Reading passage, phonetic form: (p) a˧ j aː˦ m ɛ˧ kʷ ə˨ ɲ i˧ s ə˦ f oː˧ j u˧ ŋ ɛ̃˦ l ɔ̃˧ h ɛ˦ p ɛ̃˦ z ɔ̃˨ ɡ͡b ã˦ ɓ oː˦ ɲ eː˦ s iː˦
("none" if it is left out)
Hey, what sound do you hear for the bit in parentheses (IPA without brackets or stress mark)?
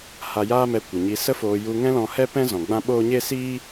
h